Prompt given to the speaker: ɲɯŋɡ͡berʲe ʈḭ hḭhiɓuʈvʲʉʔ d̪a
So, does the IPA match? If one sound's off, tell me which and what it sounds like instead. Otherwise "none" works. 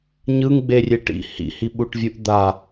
ʉ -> u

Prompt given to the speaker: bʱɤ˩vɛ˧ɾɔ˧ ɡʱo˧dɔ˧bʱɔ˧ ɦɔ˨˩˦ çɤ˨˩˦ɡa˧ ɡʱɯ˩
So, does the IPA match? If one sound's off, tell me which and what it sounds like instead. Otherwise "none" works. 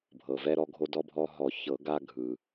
none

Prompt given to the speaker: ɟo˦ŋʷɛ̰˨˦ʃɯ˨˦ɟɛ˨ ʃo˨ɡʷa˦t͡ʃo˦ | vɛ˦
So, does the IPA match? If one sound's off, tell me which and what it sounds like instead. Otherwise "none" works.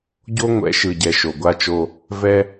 ɯ˨˦ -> ɯ˨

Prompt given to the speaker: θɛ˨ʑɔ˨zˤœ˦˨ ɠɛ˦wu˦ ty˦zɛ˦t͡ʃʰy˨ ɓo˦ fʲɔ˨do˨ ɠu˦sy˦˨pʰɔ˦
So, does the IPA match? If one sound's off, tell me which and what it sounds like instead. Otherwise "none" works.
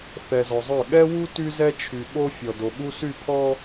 ʑ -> z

